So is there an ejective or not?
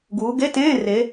no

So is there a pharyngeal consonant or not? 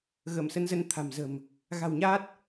no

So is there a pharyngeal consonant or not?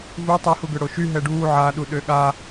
yes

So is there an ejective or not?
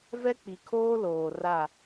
no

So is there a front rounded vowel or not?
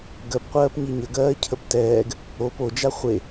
no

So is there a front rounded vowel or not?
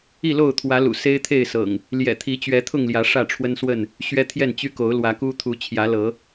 yes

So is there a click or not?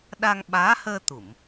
no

